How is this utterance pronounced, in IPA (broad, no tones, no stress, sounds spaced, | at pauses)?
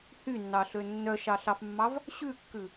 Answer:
h y nː ɑ ɬ ø nː œ ʃ ɑ ɬ ɑ f mː ɑ v | ɕ ʉ kː ʉ